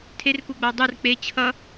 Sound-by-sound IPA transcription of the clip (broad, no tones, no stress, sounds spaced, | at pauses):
tʰ e r k u ɡ͡b a dˤ ɯ r k͡p e t͡ɕʰ ʌ